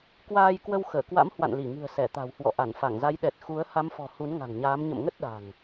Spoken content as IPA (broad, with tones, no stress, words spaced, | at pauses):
kwaː˧jkwə˧w xəː˧˩kwa̰˧˥m hwa̰˧˨nli˧˩ŋɨ̤˨˩ə̯ sɛ˧˩t̪a̤˨˩whwɔ̰˧˨ ʔa˧˩nfa˧˩ŋza˨˦j ɗɛ˨˩t̚ xu˨˦ə̯ ha˨˦mfɔ̤˨˩ hu˨˦n ŋa̤˨˩ŋɲaː˨˦m ɲə̰˧˨mŋə˦˥t̚ɗa̤˨˩ŋ